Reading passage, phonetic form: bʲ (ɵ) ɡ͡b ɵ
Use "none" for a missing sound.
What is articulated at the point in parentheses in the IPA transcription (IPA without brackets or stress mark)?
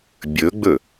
ɵ